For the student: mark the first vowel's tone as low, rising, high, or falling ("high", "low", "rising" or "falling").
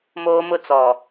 high